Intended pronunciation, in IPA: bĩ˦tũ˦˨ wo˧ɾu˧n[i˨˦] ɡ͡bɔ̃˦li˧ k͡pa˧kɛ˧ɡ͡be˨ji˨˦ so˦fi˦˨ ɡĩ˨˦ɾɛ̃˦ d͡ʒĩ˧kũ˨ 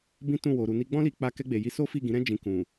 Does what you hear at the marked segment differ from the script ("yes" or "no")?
yes